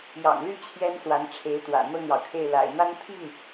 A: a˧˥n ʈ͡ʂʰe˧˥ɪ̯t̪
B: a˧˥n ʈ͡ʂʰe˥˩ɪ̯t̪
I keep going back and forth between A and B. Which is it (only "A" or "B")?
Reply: A